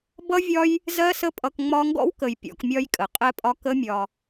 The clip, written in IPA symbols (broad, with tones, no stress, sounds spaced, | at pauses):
b ʌ˦ vʲ ɒ˦ j | z ɜ˦ s ə˦ pʼ ʌ˧ k ŋ͡m ɒ˧ ŋ ɡ ɔ̰˦ w k ə˨ j pʲ ɔ̰˧ k mʲ ɒ˦ j kʼ ə˨ qʼ ɛ˧ pʼ ɒ˧ k ə˦ mʲ ɒ˧